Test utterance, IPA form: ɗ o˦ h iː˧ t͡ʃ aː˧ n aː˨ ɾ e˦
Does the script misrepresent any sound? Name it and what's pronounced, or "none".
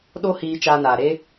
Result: none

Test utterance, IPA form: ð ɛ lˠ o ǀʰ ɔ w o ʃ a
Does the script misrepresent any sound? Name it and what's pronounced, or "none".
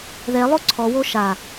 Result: none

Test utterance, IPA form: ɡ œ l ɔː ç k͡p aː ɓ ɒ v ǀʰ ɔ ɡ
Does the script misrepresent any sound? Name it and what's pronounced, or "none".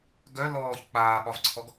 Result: none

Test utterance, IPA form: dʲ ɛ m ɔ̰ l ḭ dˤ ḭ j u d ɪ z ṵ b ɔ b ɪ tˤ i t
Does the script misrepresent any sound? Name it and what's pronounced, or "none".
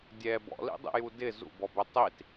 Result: m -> b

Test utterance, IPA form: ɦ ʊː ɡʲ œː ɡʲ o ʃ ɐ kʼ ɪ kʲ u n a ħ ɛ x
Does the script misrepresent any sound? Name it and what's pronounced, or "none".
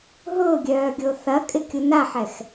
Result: ʃ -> θ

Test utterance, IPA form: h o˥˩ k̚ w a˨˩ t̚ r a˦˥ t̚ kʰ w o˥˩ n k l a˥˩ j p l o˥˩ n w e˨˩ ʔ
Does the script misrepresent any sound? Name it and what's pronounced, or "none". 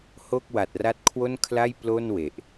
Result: k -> kʰ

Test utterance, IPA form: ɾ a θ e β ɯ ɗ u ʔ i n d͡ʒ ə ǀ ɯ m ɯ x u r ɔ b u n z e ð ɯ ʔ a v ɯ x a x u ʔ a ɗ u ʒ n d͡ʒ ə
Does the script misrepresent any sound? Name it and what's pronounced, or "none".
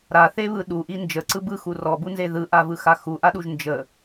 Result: m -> b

